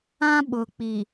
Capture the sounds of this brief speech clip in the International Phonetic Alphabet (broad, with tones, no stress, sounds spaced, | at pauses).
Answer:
ã˦ ɓ ʊ˨ k͡p i˨